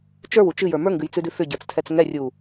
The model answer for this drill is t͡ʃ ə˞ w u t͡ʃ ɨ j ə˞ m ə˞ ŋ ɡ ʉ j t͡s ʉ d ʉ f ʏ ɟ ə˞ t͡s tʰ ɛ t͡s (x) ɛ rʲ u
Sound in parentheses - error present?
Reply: yes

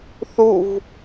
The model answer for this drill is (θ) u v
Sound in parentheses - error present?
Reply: no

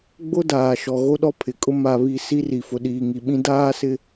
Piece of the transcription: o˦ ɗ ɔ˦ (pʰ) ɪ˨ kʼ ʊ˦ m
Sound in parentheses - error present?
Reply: no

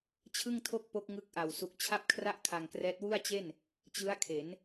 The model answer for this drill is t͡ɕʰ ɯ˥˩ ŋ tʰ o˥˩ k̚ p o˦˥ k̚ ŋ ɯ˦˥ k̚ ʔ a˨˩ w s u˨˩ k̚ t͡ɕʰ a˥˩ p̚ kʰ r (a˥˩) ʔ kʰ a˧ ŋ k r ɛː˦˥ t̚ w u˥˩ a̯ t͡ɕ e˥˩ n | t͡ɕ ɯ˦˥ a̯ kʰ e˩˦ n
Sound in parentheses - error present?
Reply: no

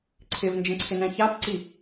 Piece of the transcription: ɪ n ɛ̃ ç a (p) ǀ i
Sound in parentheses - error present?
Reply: no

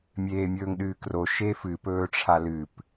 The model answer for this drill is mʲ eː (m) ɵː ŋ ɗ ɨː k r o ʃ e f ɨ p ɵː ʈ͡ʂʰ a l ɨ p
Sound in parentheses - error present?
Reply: yes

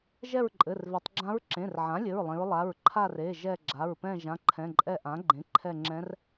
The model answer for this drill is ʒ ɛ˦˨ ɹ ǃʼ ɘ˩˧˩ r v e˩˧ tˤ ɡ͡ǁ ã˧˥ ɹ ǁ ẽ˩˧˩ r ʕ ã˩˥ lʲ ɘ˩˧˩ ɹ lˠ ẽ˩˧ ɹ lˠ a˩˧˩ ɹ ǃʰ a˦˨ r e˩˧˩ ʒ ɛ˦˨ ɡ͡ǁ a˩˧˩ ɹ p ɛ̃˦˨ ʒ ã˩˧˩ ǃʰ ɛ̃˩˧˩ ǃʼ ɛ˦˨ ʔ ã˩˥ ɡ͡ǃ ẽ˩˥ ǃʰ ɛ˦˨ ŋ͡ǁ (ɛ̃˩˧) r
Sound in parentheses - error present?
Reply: yes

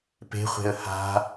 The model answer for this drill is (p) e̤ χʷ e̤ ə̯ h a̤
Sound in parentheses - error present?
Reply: no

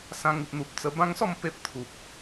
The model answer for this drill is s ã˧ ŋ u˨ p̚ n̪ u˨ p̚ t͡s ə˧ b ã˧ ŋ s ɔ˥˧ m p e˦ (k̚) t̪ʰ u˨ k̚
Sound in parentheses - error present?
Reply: yes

